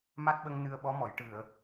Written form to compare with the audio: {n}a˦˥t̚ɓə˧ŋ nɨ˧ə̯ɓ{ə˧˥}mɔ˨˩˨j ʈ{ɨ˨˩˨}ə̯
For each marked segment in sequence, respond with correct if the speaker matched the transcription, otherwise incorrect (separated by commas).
incorrect, incorrect, correct